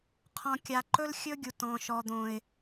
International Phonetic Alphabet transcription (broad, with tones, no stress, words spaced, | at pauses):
qʰɔ̃˨kʲa˨ ǃɵ˦lxʲɵ˦ɡʲu˨tɔ̃˨ ʃɔ˨d̪õ˨ɪ̯